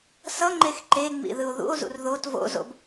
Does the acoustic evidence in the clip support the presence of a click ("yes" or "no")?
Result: yes